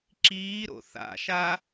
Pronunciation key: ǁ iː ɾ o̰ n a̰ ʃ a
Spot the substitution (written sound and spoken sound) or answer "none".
n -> θ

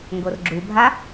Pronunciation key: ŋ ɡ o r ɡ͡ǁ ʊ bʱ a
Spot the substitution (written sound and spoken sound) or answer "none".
ʊ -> u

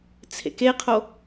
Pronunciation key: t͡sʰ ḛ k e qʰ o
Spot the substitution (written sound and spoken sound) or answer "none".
none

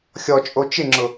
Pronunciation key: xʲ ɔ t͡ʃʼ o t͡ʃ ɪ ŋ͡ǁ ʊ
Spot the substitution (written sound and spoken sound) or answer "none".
none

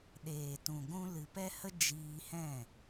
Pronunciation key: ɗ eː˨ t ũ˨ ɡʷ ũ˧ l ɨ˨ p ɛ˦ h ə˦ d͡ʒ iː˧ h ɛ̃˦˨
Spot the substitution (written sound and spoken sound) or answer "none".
none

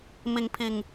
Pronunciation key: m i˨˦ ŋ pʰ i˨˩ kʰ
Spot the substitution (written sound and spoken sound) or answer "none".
kʰ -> ŋ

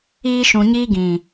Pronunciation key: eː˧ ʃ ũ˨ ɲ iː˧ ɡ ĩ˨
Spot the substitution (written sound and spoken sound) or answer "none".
eː˧ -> iː˧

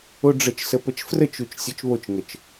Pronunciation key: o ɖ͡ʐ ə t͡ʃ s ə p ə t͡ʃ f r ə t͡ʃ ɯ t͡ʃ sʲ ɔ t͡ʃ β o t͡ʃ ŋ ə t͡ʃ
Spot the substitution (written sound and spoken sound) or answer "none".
ɯ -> u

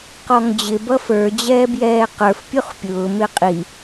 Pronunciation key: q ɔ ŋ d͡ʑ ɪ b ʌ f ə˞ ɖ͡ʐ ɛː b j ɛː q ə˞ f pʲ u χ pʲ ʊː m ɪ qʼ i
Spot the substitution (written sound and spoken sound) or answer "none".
ɖ͡ʐ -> d͡ʑ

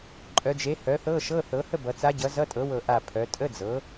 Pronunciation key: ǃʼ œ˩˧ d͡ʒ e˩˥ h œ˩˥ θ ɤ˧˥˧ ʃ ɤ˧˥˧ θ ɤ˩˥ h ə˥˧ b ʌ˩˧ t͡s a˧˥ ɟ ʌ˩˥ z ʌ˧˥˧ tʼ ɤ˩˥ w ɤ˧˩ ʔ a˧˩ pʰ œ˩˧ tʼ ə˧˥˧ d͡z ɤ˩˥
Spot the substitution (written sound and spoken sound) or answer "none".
none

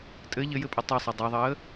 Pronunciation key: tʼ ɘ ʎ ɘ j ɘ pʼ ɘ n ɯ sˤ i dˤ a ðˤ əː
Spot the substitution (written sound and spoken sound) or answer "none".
n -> tˤ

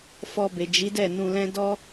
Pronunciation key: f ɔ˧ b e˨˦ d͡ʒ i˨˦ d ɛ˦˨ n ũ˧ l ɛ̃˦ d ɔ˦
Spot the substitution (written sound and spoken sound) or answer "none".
e˨˦ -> e˨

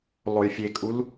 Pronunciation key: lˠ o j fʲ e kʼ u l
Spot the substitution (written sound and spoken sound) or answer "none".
none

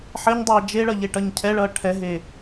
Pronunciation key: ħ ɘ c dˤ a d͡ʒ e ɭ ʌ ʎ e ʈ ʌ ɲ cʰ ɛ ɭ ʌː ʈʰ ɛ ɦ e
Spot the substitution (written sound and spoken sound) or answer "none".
c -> ɲ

